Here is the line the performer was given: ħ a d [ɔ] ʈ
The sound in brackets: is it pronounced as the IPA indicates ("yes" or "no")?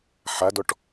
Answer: yes